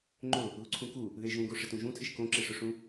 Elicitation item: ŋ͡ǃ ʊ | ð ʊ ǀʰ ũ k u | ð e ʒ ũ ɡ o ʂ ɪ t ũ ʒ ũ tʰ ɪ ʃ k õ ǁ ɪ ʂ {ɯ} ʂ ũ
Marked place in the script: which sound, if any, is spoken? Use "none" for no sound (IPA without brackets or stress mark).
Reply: ʊ